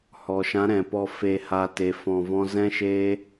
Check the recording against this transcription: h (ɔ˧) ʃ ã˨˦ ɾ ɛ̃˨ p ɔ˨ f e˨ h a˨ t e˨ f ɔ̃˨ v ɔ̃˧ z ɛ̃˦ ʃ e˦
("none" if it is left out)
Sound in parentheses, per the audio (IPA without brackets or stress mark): ɔ˨